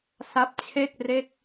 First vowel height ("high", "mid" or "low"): low